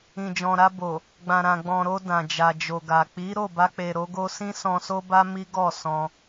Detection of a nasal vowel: present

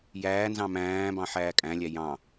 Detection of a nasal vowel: present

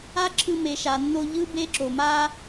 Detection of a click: present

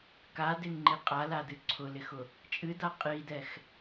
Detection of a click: present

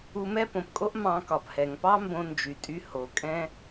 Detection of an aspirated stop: absent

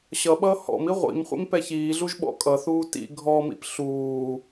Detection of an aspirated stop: absent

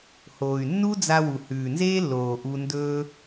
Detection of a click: absent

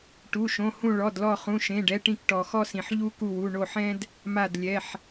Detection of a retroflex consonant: present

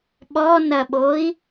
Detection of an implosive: present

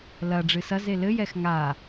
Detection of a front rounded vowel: absent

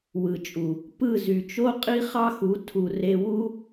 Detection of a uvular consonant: present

